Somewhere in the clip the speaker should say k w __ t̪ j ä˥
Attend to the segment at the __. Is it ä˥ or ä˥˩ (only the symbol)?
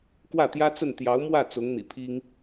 ä˥˩